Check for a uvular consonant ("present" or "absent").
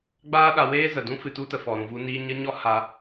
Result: absent